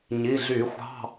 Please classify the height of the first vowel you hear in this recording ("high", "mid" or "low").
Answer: high